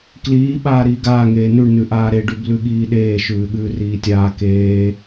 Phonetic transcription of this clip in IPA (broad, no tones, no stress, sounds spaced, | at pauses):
k l iː ɓ aː ɾ iː ɡ aː ŋ eː n ʉ ɳ n ʉ ʔ aː ɾ e ɖ ʉ b l ʉ ɠ iː ɗ eː ʃ ʉː ɠ ʉː r iː tʲ aː k eː